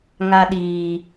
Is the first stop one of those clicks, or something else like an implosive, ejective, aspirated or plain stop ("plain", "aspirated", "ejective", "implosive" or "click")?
implosive